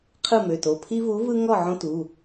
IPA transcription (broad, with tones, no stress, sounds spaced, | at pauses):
qʰ ɯ˥˨ m ø˩˧˩ t o˩˧˩ pʰ i˦ v u˨˥ v ɯ˦ ŋ ɔ˥˨ ʕ õ˦ t u˩˧˩